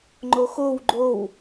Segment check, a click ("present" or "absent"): present